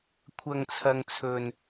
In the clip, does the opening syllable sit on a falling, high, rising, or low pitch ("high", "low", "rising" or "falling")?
low